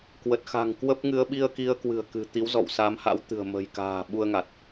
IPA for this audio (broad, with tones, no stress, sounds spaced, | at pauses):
k w ə˨˩ t̚ x a̤˨˩ ŋ k w ə˦˥ p̚ ŋ ɨ˧ ə̯ ɓ i˧ ə̯ k i˧ ə̯ k w ɨ̤˨˩ ə̯ k ɨ̤˨˩ t̪ i˨˦ w z ɔ̰˧˨ w s aː˨˦ m h a̰˧˥ w t̪ ɨ̤˨˩ ə̯ m ə̤˨˩ j k a̤ː˨˩ ɓ u˧ ə̯ ŋ a˨˩ t̚